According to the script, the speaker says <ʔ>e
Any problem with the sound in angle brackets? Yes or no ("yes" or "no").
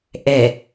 no